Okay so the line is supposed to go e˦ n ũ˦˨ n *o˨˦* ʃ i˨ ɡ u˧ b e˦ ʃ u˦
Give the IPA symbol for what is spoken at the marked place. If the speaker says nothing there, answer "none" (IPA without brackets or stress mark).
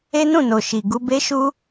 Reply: o˨